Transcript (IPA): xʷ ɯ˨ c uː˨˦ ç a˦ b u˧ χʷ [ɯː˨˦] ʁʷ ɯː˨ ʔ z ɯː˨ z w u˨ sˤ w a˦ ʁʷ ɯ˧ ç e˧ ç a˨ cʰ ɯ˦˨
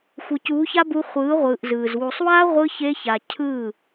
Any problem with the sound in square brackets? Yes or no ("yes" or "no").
no